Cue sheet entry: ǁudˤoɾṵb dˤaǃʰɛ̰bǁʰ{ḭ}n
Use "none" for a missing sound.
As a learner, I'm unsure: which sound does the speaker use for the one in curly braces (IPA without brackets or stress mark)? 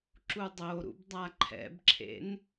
ḛ